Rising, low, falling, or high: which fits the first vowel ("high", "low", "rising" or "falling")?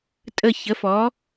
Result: falling